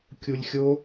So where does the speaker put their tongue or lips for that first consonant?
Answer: velum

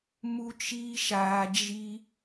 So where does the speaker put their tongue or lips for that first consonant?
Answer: lips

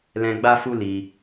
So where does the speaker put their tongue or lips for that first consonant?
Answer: tongue tip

